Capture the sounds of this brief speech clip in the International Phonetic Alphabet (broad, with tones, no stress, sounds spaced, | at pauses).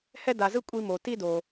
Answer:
h ɛ˥ d a˧ z ɯ˥ kʷʼ i˥ m o˧ t i˥ d o˧